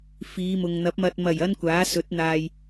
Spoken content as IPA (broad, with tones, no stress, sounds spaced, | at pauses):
f iː˨˧ m ʊ˨ ŋ n̪ ɐ˨˥ p̚ m ɐ˨ t̚ m ɐ˨˩ j ɐ˧ n kʷ aː˨˥ s ɵ˨˥ t̚ n̪ aː˨ j